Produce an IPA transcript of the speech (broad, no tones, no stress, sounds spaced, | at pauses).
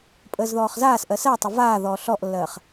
pʼ əː z ð ɔː χ z aː s ʔ ɜ s ɜ tˤ ə v aː ð ɔː ɬ ɔ ʔ lː ɜː χ